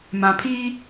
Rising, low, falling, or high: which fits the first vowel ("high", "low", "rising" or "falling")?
low